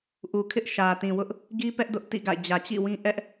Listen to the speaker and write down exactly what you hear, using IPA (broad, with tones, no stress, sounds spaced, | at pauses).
ʔ u˨ kʰ ɪ˦ ʔ ʃ ä˨ t ĩ˨ w ʊ˦ ʔ | ɡ i˦ p ɛ˦ ʔ d ʊ˦ ʔ t ḭ˦˨ ɡ a̰˦˨ ɪ̯ d͡ʑ ä˨ t͡ɕ ḭ˦˨ w ĩ˦ ʔ ɛ˦ ʔ